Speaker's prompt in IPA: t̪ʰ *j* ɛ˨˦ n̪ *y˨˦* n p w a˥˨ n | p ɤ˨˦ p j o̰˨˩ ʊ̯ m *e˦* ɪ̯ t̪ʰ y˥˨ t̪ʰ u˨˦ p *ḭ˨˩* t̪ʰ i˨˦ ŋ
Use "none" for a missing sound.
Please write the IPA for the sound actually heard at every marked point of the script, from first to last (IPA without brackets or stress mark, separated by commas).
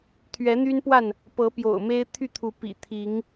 ɥ, y˦, e˦, ḭ˨˩